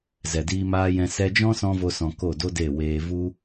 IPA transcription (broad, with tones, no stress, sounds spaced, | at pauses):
z ɛ˨ d iː˧ m aː˧ j ɛ̃˧ s ɛ˧ d͡ʒ ɔ̃˦ s ɔ̃˦ v o˦ s ɔ̃˧ k o˦˨ d o˦ d e˦˨ w eː˧ v u˦